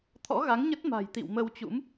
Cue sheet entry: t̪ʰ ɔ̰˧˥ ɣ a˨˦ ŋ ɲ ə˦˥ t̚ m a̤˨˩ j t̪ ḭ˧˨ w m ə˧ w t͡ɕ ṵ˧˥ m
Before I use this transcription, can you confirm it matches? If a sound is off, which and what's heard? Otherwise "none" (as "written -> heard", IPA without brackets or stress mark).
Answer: none